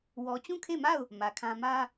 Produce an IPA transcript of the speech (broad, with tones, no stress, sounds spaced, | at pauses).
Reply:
w ɔ˨ t͡ɕ ũ˦˨ kʰ e˦˨ m a˦˨ ʊ̯ | m ä˨ kʰ ã˦ m ä˦